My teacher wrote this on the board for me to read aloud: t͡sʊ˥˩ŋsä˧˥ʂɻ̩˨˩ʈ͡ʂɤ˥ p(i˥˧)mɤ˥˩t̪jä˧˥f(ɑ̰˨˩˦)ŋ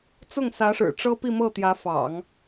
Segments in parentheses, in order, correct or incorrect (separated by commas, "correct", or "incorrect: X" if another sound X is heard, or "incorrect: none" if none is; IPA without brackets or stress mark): correct, correct